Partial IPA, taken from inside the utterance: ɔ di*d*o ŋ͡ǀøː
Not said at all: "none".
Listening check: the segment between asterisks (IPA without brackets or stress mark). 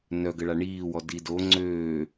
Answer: d